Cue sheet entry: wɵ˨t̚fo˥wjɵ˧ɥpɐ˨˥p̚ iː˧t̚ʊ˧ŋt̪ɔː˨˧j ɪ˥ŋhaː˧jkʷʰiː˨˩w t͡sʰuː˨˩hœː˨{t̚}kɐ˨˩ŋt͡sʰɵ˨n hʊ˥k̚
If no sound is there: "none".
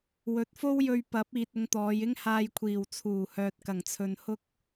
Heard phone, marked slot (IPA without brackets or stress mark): t̚